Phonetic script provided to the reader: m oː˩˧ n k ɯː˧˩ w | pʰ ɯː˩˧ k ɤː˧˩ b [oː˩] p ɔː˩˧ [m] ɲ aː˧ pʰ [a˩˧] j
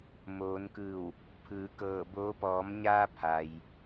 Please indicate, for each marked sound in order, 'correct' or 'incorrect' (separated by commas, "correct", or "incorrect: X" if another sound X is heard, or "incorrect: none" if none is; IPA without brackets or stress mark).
incorrect: oː˧˥, correct, incorrect: a˩